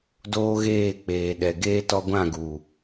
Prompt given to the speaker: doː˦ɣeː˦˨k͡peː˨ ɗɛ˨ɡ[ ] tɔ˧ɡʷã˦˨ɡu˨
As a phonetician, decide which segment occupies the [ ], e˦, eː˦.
eː˦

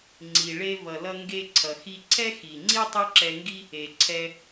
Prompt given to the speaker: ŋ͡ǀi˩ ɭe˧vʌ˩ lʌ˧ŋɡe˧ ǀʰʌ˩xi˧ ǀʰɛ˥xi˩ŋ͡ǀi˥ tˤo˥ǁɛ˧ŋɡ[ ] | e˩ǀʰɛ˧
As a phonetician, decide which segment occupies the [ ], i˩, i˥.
i˥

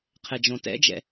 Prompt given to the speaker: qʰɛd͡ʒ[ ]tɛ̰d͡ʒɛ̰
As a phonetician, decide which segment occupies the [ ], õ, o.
õ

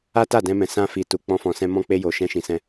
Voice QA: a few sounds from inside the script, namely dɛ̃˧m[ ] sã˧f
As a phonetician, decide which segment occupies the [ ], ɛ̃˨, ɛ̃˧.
ɛ̃˨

